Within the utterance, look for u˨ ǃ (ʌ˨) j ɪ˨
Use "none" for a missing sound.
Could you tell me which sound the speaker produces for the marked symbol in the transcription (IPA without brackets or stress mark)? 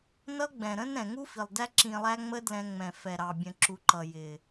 ʌ˨